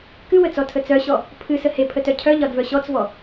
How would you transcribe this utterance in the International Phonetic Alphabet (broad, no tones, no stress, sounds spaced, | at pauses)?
k ɨ w ə t͡s ɔ tʰ ə t͡s œ ɕ ɔ | pʰ ɨ s ə h e pʰ ə t œ cʰ œ ʎ ɒ d v œ ɕ ɔ t͡s v ɔ